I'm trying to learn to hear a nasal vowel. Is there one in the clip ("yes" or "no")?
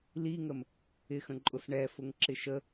yes